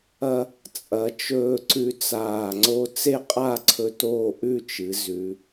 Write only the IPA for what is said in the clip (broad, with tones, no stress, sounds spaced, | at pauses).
ɐ˧ | t͡sʼ ɐ˩˧ t͡ʃ ɵː˧ ǀ ʉ˧ t͡s aː˧˩ ŋ͡ǀ o˥ t͡s e˥˧ qʼ a˥˧ ǀʰ ɵ˧ t oː˥˧ ʔ ʉ˥˧ t͡ʃ ɨ˩˧ z ʉ˩˧